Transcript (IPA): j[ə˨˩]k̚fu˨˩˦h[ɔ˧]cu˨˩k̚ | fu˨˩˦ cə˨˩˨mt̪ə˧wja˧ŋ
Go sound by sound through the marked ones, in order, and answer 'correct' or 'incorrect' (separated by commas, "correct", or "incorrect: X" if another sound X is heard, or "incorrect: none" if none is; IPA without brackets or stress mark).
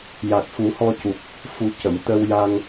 incorrect: a˨˩, correct